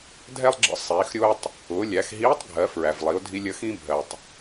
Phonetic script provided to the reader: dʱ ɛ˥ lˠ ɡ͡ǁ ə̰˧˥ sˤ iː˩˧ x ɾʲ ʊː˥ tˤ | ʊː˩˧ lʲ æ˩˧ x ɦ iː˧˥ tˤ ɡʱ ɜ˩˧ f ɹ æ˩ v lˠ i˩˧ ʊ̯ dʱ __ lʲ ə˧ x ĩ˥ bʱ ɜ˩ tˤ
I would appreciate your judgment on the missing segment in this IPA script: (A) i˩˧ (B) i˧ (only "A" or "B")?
B